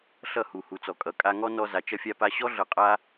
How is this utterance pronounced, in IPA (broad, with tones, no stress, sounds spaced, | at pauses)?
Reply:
ɬ ʌ˦˨ h u˨ h u˨ t͡s ɔ˨ kʼ ʌ˨ kʼ a˧ ŋ ɔ˦ n ɔ˧ z a˨ t͡ʃ ʌ˧ fʲ a˧ p a˧ ɕ ɔ˦ ɮ ʌ˧ qʼ a˦